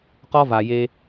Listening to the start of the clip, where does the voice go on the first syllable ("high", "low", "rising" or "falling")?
high